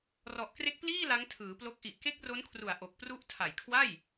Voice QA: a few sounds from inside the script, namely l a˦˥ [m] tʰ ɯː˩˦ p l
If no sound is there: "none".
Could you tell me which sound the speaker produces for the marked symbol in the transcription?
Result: ŋ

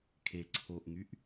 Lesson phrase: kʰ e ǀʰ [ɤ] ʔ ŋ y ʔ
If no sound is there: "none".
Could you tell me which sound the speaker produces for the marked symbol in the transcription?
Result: o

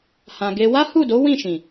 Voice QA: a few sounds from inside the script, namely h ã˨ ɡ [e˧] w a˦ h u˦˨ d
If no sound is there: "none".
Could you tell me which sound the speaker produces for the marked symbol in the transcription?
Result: e˧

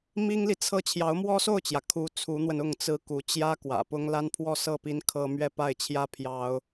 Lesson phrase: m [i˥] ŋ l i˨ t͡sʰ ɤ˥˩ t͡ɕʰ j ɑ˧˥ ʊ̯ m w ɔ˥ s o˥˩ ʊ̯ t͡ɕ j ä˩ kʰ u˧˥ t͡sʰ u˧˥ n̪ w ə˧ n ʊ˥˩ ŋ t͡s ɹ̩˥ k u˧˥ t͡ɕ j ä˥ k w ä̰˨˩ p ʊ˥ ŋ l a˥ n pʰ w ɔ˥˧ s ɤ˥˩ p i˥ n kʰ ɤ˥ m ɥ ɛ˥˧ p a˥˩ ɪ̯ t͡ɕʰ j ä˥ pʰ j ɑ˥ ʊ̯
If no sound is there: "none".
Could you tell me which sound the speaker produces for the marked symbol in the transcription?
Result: i˥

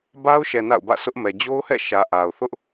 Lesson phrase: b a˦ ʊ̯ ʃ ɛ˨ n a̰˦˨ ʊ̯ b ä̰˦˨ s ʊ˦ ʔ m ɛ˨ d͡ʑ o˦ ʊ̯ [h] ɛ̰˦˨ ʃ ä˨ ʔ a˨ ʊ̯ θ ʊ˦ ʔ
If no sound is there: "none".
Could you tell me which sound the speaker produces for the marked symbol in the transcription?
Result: h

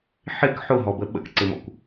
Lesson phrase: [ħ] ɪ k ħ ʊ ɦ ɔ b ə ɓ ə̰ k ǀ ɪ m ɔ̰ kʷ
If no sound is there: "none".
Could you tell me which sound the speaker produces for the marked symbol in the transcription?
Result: ħ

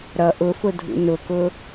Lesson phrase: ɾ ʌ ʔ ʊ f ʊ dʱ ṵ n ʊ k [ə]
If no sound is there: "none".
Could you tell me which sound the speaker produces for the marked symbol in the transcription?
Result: ʊ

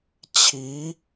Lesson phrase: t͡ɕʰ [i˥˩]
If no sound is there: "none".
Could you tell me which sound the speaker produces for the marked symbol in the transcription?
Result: i˧˥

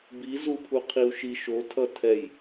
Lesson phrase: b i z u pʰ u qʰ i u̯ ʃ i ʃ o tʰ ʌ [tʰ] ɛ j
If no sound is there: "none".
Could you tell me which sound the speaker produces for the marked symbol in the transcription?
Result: tʰ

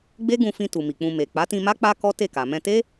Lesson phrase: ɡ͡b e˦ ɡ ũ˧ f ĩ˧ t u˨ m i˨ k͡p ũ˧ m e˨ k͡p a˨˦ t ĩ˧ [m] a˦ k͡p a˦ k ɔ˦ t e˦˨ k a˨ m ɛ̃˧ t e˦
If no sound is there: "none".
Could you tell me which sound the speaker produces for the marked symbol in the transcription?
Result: m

